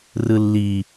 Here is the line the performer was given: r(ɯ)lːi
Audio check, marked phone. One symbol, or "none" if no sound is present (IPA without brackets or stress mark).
ɯ